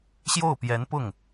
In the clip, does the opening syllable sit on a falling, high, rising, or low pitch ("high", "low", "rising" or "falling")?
falling